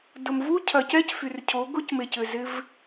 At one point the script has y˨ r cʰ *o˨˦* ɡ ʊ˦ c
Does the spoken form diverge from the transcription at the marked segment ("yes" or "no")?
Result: no